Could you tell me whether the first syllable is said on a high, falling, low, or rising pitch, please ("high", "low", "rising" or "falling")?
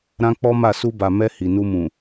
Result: high